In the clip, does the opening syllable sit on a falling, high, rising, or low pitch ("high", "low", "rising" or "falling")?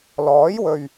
rising